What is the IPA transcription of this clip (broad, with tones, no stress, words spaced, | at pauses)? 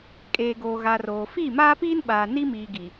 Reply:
kʼeː˨ɡoː˨ɣa˨r oː˨ fiː˦˨maː˦piː˦nɓaː˨ ni˦miː˨ ɡi˨